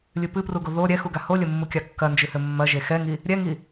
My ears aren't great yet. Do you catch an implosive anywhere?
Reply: no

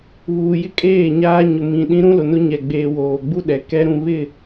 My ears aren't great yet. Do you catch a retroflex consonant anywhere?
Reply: no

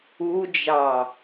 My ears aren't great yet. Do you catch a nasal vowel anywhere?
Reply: no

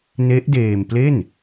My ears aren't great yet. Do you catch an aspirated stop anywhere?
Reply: no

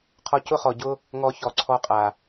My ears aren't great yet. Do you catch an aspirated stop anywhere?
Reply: yes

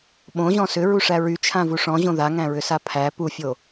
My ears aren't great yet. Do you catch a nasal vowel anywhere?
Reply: yes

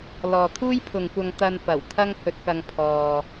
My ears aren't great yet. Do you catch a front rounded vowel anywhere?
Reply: no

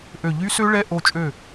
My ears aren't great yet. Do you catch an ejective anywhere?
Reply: yes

